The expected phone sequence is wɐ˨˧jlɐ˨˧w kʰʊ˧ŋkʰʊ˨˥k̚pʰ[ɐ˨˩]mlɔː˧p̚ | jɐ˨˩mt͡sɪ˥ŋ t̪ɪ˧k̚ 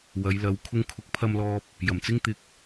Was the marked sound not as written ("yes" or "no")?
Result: yes